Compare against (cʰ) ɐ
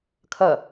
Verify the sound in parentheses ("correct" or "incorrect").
incorrect